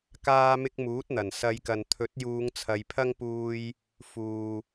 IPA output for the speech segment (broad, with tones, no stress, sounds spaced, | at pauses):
k aː˧ m ɪ˧ k̚ m uː˨˥ t̚ n̪ ɐ˨˩ n s ɐ˨˧ j k ɐ˨ n t̪ʰ ɵ˨˥ t̚ j uː˨˧ ŋ t͡sʰ ɐ˨˧ j pʰ ɐ˥ ŋ p uː˧ j | f uː˨